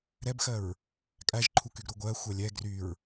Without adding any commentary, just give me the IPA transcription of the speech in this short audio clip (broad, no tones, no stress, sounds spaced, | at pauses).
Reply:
ɾ ɛ b x ɜ ɹ | kʼ æ ʒ ǃʰ u k y ɡ ɾ u ɡʷ ɜ xʷ ɜ lʲ ɛ ɡ r y ɹ